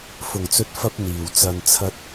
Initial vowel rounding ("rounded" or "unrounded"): rounded